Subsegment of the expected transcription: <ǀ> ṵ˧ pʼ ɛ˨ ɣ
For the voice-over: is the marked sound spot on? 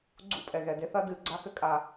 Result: no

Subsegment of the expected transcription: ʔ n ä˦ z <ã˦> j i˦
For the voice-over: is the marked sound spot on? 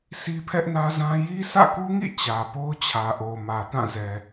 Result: yes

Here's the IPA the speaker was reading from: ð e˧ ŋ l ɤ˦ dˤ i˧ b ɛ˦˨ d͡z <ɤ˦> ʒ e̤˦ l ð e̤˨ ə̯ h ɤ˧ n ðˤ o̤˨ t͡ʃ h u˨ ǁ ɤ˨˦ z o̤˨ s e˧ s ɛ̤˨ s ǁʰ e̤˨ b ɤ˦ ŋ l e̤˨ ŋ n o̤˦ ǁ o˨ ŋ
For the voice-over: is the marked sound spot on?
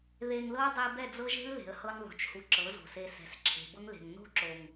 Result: yes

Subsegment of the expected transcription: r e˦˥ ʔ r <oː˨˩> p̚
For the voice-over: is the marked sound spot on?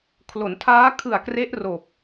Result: yes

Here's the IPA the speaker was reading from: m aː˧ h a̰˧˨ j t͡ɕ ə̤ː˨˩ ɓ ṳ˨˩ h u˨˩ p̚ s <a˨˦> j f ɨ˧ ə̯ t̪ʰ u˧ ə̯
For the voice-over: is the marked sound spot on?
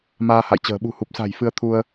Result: no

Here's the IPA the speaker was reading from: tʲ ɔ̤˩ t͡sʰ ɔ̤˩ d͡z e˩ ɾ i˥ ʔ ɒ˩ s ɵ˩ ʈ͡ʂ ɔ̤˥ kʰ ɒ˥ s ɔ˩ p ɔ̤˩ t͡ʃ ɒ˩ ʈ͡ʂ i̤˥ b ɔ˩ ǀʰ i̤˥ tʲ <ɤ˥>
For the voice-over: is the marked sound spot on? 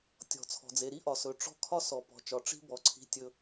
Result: no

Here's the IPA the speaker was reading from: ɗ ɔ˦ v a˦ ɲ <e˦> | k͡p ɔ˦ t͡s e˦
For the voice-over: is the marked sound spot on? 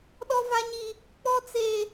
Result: no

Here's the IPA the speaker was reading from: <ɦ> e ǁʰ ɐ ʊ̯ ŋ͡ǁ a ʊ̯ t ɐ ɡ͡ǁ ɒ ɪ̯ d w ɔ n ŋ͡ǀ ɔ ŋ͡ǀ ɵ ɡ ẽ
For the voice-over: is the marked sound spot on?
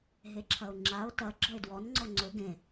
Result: yes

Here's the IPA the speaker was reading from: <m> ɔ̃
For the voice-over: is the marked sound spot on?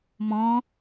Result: yes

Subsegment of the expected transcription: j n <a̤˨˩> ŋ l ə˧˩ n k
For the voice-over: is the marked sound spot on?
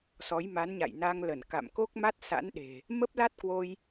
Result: no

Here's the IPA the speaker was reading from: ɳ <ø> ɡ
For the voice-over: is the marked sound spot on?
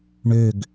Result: yes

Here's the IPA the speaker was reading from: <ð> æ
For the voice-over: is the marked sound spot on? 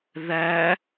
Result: yes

